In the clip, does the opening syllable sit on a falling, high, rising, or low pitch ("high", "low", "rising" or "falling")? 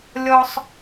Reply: high